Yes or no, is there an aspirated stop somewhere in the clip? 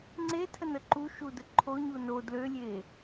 yes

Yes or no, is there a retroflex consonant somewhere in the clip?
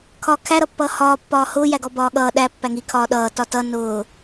no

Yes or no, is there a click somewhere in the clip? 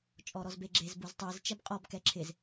yes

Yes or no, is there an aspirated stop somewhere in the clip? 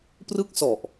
no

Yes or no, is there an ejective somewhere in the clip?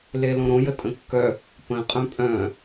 yes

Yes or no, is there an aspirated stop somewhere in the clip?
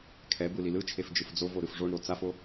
yes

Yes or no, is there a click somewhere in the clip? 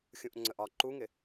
yes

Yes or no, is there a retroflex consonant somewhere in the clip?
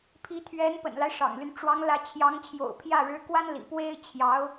yes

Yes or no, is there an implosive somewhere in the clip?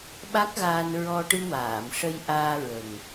yes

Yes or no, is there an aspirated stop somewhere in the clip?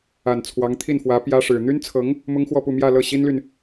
yes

